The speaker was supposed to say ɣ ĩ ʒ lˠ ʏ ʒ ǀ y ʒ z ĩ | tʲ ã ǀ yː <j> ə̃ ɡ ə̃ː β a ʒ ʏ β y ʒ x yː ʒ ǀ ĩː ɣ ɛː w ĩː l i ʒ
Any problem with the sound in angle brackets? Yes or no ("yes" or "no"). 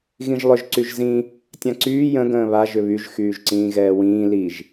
no